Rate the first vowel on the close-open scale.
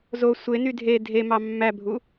mid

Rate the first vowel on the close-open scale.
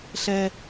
mid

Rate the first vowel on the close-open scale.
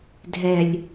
mid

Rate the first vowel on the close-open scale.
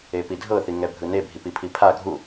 mid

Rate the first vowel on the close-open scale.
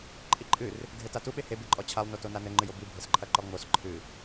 close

